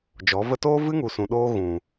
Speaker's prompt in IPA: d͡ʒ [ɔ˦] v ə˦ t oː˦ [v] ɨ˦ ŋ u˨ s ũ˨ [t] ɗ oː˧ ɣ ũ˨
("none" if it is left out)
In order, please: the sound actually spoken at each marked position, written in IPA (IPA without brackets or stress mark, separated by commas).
ɔ˨˦, v, none